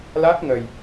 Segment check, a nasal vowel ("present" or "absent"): absent